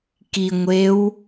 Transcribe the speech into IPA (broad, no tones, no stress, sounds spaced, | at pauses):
k i ŋʷ e w